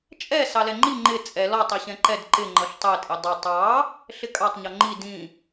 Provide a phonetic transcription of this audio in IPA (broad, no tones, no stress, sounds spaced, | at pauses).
t͡ʃʼ ɛ s ɑ l ɛ ŋ͡ǃ i ŋ͡ǃ ɪ t͡sʼ ɛ l ɔ tˤ i ɕ ɛ̃ ǃ ɛ d ǃ ɪ ŋ͡ǃ ʌ ɬ tˤ ɛ tʼ ɪ dˤ ʌ tˤ ɑ | ɬ ɪ kʼ ɑ tˤ ɲ ɔ ŋ͡ǃ i d ĩ